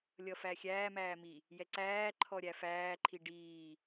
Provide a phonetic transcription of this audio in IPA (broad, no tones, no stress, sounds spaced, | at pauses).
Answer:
lʲ ʌ f æ xʲ æː m æː m i | j ɛ ǀ æː ǃʰ ɔ ɾʲ æ f æː ǃʰ i ɖ iː